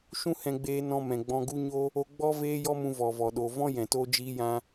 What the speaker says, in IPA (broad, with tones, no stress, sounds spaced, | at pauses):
ʃ ũ˦ h ɛ̃˧ ɡ͡b eː˧ n ɔ̃˧ m ɛ̃˨ ɡ͡b ɔ̃˧ ɡ u˦ ɲ o˦ | o˧ ɡ͡b ɔ˦ v eː˦ j ɔ˦ m ũ˧ v ɔ˨ v ɔ˨ ɗ o˨ v ɔ̃˦ j ɛ̃˨ t o˧ d͡ʒ iː˧ j ã˧